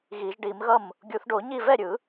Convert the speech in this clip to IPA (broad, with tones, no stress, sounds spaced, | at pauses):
ɣ i˨˩˦ ʒ ɖ i˨˩˦ m ɣ ʌ˥˩ m | ɡʲ u˨˩˦ θ ɖ o˨˩˦ ɲ i˥˩ v ɛ˥˩ ɾʲ ɯ˨˩˦